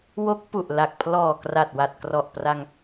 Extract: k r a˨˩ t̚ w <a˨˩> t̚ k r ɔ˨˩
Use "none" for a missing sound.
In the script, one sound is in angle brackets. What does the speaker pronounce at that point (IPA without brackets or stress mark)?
a˨˩